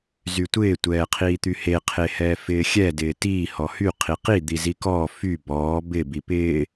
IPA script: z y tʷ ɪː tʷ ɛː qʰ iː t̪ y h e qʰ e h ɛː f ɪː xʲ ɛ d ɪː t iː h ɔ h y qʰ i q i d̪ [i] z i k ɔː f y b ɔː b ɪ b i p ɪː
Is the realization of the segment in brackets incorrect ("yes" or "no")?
no